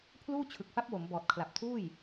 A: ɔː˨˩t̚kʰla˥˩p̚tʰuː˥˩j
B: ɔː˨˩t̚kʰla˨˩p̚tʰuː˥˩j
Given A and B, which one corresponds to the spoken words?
B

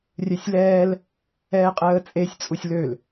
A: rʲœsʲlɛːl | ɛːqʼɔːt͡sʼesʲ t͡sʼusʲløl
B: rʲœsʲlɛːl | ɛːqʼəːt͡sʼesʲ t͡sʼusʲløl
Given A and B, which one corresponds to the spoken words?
B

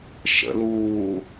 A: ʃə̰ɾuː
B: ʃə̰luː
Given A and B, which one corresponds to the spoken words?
B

